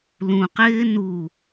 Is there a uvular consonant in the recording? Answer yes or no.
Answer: yes